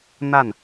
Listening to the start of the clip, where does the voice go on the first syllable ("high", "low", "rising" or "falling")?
falling